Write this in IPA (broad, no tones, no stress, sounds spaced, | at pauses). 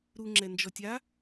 ɾ u ŋ͡ǁ ɛ n d͡ʒ ɔ tʲ a